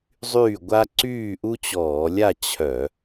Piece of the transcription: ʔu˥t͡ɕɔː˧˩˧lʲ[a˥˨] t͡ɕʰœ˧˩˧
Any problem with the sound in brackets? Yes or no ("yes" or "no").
no